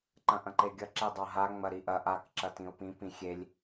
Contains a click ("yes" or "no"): yes